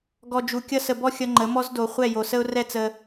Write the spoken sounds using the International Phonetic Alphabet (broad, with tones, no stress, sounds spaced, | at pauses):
ɡ ɔ˨ d͡ʒ u˨ kʲ ʌ˧ s ə˨ b ɔ˦ xʲ ʌ˧ ŋ͡ǃ ə˨˦ m ɔ˦ z d o˨ χʷ ɛ˦˨ j o˨ s ə˦ ʊ̯ r ɛ˦ t͡s ə˧